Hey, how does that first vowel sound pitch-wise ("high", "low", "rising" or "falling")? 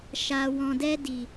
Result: low